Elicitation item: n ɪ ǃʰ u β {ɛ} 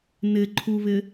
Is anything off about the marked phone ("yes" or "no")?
yes